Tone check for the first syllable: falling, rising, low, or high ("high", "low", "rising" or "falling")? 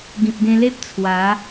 low